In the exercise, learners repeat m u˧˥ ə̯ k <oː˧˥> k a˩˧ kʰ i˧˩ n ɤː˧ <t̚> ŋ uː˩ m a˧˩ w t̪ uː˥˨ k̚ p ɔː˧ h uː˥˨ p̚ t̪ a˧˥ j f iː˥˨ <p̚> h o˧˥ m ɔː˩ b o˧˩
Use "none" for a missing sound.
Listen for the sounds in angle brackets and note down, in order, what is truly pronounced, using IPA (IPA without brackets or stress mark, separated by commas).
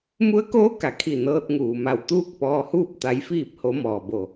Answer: oː˧˥, t̚, p̚